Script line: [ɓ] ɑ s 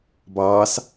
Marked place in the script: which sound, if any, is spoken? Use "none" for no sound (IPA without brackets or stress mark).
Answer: b